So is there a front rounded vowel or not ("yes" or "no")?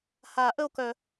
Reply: yes